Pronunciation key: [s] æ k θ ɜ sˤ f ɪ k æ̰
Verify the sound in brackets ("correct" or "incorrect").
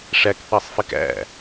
incorrect